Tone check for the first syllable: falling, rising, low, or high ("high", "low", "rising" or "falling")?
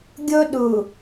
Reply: high